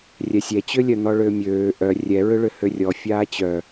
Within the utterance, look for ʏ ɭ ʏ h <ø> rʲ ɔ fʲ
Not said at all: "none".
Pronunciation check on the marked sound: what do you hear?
ø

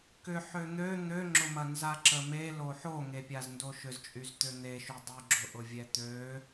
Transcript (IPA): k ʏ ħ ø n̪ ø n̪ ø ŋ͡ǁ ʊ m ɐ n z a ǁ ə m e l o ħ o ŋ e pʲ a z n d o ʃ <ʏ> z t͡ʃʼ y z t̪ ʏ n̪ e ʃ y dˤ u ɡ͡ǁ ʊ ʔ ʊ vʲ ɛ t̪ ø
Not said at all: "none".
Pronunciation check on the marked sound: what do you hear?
ʏ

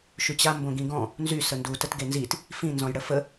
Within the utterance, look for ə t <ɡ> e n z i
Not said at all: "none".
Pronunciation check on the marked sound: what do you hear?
ɡ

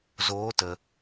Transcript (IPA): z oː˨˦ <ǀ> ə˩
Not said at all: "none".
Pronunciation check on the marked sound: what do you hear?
t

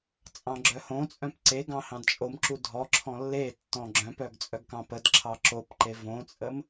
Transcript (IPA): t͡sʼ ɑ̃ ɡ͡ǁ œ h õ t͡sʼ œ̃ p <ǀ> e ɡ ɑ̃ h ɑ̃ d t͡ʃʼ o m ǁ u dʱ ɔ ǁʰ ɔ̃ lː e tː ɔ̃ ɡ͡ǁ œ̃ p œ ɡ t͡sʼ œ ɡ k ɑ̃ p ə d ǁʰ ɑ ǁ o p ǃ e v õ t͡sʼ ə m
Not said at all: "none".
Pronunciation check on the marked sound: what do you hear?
ǀ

